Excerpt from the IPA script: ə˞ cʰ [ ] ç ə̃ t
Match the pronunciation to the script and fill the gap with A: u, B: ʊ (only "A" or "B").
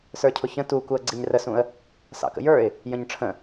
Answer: B